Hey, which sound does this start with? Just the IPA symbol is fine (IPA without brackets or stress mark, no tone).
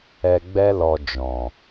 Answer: ɛ